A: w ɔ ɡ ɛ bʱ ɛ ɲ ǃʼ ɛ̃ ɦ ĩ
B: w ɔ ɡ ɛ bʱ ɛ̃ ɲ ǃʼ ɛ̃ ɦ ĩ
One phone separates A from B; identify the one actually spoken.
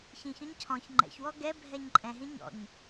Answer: A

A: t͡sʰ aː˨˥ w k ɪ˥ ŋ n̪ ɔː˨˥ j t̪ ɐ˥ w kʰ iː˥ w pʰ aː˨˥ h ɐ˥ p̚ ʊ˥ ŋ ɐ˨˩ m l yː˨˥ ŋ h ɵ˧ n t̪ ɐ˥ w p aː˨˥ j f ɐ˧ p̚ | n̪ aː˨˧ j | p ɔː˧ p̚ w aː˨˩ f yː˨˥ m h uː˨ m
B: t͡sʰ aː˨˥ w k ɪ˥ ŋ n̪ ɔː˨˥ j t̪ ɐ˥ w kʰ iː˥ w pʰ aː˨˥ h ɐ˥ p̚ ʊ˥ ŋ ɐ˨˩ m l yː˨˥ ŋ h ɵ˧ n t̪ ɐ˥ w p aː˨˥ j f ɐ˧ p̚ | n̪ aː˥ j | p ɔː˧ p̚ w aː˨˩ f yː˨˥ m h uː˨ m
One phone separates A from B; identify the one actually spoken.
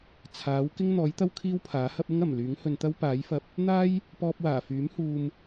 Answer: B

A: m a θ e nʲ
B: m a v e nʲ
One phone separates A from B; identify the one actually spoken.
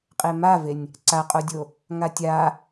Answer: B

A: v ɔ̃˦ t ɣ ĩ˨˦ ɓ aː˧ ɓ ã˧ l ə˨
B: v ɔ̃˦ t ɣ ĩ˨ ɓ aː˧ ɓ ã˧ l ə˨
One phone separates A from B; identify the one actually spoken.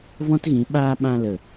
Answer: A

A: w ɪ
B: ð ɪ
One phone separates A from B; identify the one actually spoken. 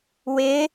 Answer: A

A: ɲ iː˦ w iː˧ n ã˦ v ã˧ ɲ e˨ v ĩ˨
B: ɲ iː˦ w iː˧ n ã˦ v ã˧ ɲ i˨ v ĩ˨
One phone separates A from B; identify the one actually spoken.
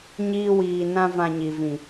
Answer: B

